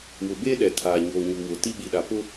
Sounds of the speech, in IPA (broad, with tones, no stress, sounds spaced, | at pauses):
w ʊ˨ b e˦ ɗ ɛ˨ tʰ aː˨ ɲ oː˨ ɲ u˨ w ʊ˨ t i˦ ɓ i˨ ɗ a˨ p ʊ˦